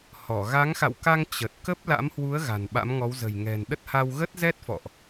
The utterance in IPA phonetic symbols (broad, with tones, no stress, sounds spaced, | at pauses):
h ɔ˧˩ ɣ a˨˦ ŋ x a̰˧˨ w k a˧ ŋ t͡ɕ ə˨˩ t̚ k ə˦˥ p̚ l a̰˧˥ m h w u˨˦ ə̯ ɣ a̤˨˩ n ɓ a̰˧˥ m ŋ ɔ˨˦ w z ə̤˨˩ j ŋ ɛ̤˨˩ n ɗ ə˦˥ t̚ h a˧ w ɣ ə˦˥ t̚ z ɛ˦˥ t̚ f ɔ̰˧˨ ʔ